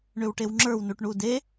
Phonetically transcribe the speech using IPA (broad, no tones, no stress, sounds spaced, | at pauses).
ɳ ʏ w ʈ e w ŋ͡ǁ ə˞ w n u ʈ ɳ u d e